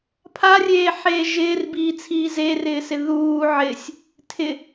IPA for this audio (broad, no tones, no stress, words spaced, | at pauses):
pʰarʲeːħeː ʒɪːrbiːt͡sʰiː zerɪːsɪ ðuː ʕɪsʲ | tʰɪ